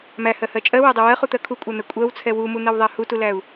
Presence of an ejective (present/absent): present